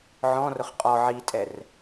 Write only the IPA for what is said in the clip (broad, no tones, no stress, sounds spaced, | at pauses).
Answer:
ʕ ɔ̃ r ʊ χ qʼ ɔ ʕ i tʼ ɛ r